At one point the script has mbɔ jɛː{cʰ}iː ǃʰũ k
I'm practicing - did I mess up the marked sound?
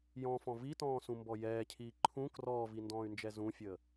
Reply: no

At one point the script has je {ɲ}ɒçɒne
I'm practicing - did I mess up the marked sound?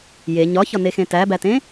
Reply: no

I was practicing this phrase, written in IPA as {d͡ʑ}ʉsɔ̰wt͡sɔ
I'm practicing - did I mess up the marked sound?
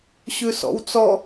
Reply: yes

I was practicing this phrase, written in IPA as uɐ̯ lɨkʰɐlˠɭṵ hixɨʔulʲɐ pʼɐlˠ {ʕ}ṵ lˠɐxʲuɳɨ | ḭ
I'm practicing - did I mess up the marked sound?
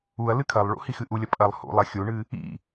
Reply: yes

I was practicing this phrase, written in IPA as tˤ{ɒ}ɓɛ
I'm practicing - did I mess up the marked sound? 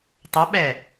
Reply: yes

